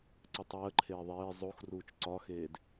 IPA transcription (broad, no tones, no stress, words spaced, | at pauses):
ǀɘtˤəːǃʰeː ðˤeː zˤoxruːt͡ʃ ǀɒxeːd